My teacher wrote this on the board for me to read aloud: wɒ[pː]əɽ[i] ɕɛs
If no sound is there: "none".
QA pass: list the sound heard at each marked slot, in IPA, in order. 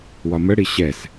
m, i

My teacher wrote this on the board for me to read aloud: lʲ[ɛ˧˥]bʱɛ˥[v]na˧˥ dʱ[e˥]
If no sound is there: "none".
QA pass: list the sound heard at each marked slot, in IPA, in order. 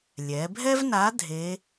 ɛ˩˧, v, e˧˥

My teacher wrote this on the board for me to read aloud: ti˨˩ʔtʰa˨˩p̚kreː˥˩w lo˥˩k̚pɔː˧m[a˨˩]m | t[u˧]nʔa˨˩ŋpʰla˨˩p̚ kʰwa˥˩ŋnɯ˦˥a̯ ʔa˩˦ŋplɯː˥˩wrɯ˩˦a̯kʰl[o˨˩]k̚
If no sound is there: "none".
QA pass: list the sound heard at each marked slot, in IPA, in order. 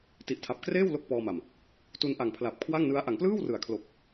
a˨˩, u˧, o˨˩

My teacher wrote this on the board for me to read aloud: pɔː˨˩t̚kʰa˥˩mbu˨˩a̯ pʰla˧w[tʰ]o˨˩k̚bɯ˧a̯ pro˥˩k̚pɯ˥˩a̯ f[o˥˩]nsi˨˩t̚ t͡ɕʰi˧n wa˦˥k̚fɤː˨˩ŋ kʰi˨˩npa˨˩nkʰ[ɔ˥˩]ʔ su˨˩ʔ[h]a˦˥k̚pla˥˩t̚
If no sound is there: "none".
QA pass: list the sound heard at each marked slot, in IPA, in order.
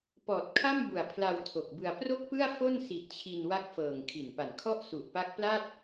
tʰ, o˥˩, ɔ˥˩, p

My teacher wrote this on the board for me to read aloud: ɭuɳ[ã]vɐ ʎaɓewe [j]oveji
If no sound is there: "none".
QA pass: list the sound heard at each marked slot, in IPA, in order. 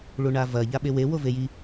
a, w

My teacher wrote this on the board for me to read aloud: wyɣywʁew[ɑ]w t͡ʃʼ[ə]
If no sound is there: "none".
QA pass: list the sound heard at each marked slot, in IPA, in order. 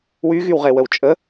ə, ə

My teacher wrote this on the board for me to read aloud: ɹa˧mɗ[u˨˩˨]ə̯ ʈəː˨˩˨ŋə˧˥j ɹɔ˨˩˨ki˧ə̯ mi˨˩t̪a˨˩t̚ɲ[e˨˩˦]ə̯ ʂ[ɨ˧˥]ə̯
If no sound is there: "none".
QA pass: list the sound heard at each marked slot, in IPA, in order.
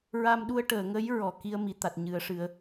u˧, ɨ˨˩˦, ɨ˨˩˦

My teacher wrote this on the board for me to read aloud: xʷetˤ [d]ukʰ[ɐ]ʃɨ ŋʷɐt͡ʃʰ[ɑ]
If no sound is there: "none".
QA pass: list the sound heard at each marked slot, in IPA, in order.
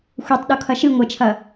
ɗ, ɐ, ɐ

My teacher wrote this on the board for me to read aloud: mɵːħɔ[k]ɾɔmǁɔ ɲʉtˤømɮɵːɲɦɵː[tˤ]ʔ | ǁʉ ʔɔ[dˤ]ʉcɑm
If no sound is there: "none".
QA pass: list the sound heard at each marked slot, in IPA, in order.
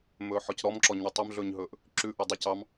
c, none, dˤ

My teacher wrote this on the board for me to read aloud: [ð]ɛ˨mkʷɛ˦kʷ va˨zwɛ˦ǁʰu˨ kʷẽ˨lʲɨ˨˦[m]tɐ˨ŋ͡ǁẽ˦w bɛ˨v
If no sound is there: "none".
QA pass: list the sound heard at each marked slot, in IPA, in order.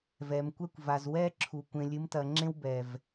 v, m

